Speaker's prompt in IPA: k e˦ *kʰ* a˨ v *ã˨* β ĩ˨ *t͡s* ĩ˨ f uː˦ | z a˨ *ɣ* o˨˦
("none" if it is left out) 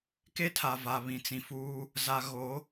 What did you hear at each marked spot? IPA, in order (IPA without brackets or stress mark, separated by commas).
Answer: tʰ, a˨, t͡s, ɣ